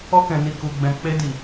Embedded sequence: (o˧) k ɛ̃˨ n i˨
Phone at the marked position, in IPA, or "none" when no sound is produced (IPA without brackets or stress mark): ɔ˧